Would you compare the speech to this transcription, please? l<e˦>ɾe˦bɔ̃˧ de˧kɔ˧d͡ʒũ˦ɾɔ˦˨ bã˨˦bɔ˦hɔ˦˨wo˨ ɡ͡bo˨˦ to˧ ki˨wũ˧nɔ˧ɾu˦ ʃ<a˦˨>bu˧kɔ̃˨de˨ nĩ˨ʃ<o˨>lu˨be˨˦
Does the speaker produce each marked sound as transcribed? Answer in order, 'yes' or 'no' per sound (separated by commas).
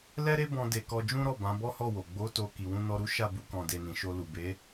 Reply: no, yes, no